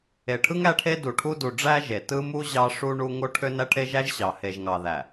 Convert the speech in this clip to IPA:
e˨ʈʰɯ˦ŋ æ˦ʈʰe˦du˨ʈʰu˦ du˨ɖ͡ʐæ˦ ʒe˨ tɯ˦mu˦ ʑɑ˦ʂu˦ɳu˦ ŋo˦ ʈʰø˦næ˦ ʈʰe˦ʒæ˦ʒɕɑ˨ he˨ʒŋɑ˨ ðæ˨

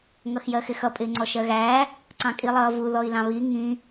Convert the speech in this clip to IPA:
ŋʌxjɜxɪxʌ pʼɪːŋ͡ǀɔʃɜɣæː | ǀɑ̃kʼilˠʌːvu ðɔi̯lɑ̃βi ŋĩ

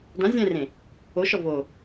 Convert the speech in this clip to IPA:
dã zʲɛ̃rẽ | oʃɔ vo

